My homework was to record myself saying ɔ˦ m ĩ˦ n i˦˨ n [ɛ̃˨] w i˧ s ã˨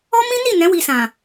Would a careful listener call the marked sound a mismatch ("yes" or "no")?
yes